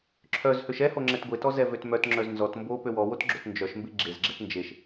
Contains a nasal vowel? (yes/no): no